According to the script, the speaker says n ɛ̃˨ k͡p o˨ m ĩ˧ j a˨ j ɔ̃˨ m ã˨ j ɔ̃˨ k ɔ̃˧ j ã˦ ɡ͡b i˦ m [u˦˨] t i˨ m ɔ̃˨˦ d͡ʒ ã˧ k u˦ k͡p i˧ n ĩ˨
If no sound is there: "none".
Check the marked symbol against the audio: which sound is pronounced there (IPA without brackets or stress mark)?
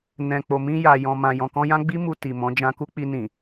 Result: u˧